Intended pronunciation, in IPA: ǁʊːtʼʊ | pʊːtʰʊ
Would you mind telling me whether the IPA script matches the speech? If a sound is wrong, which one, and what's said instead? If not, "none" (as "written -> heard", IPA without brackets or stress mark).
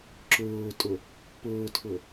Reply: none